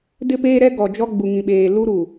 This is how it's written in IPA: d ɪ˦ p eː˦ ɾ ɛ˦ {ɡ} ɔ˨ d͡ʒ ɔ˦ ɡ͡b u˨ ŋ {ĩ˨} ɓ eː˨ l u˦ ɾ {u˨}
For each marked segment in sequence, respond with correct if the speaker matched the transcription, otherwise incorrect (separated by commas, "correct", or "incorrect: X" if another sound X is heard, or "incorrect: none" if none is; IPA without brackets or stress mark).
correct, correct, correct